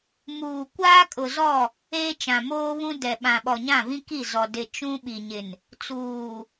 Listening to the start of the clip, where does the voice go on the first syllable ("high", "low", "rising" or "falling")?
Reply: low